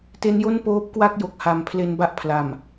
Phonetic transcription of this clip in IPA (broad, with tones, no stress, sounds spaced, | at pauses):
t e˦˥ n j o˥˩ n p oː˦˥ p̚ k w a˥˩ k̚ j o˨˩ k̚ h a˩˦ m pʰ l e˧ n b a˥˩ ʔ pʰ l a˨˩ m